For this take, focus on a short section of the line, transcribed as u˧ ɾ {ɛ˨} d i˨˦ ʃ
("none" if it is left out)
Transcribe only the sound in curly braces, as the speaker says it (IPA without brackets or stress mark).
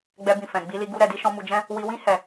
ɛ˨